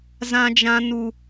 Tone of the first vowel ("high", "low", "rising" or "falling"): high